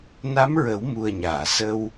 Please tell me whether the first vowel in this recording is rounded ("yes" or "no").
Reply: no